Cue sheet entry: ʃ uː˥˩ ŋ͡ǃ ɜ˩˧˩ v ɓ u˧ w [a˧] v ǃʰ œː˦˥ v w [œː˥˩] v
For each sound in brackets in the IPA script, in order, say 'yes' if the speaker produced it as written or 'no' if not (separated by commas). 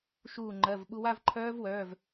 no, no